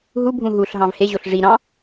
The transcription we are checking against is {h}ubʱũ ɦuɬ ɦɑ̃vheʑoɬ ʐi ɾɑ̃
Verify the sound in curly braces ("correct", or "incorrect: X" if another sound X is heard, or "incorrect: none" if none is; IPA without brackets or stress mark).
incorrect: ɦ